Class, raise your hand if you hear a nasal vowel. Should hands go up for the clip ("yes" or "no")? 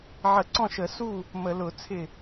yes